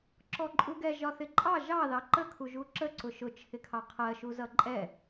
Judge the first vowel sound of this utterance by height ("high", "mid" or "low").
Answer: mid